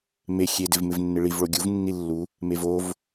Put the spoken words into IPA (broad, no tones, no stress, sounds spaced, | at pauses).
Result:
m e xʲ e d ɪ v m ɪ v nː ɪ ɭ i v ɭ o ɡʲ u v nː i lː u | m e v o v